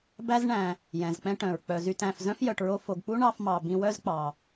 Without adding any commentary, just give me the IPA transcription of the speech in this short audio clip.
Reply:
b æ˦ z ɳ æ̃˨ | j ɛ̃˩ z k͡p ɛ̃˦ ʈ œ̃˩ ɹ k͡p œ˩ z y˨ t æ̃˨ f z œ̃˥ f j œ˨ ʈ ɹ o˦ f o˨ ɡ k͡p u˥ ɳ ɑ˦ f m ɑ˨ b ĩ˦ w œ˥ z k͡p ɑ˨

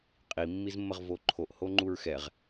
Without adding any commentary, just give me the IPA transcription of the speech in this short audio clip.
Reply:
qʼ i mː i z mː ə ʁ v o ǃʰ o ʔ h o ŋ͡ǃ u ɹ x ɛ ʁ

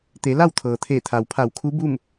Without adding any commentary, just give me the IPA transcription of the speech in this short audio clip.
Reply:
t̪ e˩˧ l a˥˨ w t̪ʰ ɤː˩ t̪ʰ eː˧˩ t̪ʰ a˩ w pʰ a˧˩ w kʰ u˧˥ b u˥˨ m

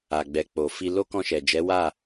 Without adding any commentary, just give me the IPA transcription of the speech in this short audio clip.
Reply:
a˨ ɡ͡b ɛ˨ k͡p o˨ f i˧ l o˦ k ɔ̃˧ ʃ ɛ˨ d͡ʒ ɛ˨˦ w a˦˨

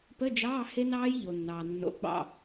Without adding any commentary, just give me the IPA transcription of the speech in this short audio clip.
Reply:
p ə˧˥˧ d͡ʒ ɑː˧˥˧ h e˦˥ n ɑː˦˥ j ʎ o˨ nː ɑː˨ nː o̰˧˥˧ ɡ͡b ɑ̰˦˨

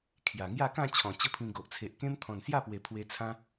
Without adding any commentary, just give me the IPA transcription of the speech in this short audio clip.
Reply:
kʰ j a˨˩ ŋ j a˥˧ k ã˥˧ t͡ɕʰ ɔ̃˨˩ t͡ɕ ə˦ pʰ ĩ˧ ɡ o˨ ʔ t͡sʰ e˨ ʔ k ẽ˦ m t̪ʰ ɔ̃˨˩ n s j a˥˧ p w e˨˩ pʰ w e˧ t͡sʰ ã˦

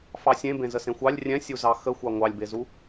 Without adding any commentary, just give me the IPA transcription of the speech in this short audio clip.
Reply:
f ɑ sʲ ẽ b ẽ z ə s ẽ xʷ ɑ lʲ rʲ ɛ̃ sʲ u z ɑ x ə xʷ ɑ ŋʷ ɑ lʲ b e z u

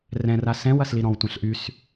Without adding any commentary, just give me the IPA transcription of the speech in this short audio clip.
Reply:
r ɛ̃ r a s ɛ̃ w ɐ s l i ɾ ɔ̃ w tʷ ã ɬ ʔ y s

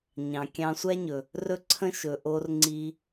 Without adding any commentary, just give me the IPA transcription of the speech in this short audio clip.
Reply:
ɲ ɑ̃˨ kʲ ɑ̃˧ sʷ æ˦ ɲ ɵ˨ | r ɵ˦ ǀʰ ə̃˦ ʃ ɵ˨ ʔ o˧ r ŋ͡ǀ i˧

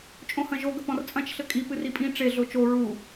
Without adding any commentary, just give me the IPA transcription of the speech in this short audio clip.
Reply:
t͡ʃʼ õ h ɐ̃ ʒ o ɡ ɐ p ɔ̃ r t͡sʼ ɐ̃ t͡ʃ ɬ ɘ kʼ i p ɨ r i pʼ ĩ ʈ͡ʂ e ɮ o t͡ʃ o ɹ u

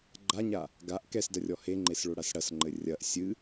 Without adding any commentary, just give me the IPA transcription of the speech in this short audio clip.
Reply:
ɡ͡ǃ a ɲ a | ɡ a ʔ k ɛ s d ɐ rʲ ɔ h e ŋ͡ǃ e s ɭ o ɽ a s ɽ ɐ s ŋ͡ǃ ɘ rʲ ɐ ʔ sʲ ɨ

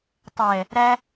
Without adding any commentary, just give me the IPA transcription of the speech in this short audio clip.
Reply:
tˤ ɛ | ɾ æ

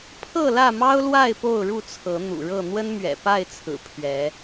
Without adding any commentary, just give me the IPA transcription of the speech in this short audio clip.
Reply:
pʰ ɤ˥˨ l ä˥˨ m ɑ˦ ʊ̯ l w a˥˨ ɪ̯ p o˥˨ ʊ̯ ɻ u˥˨ t͡sʰ ɤ˨˦ n̪ ṵ˨˩ ɻ ɤ˥˨ n̪ w ə˦ n m ɥ ɛ̰˨˩ p a˥˨ ɪ̯ t͡sʰ ɹ̩˨˩ pʰ ɥ ɛ˨˦

